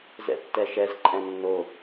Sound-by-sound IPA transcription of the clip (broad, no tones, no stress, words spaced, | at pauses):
zɛ̰tːɛʃɛz ǃʼɛ̃nːo